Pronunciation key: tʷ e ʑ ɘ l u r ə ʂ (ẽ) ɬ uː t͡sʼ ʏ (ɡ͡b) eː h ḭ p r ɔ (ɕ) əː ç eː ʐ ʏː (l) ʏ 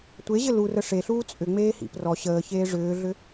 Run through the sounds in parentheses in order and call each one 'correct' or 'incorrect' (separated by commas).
incorrect, incorrect, correct, incorrect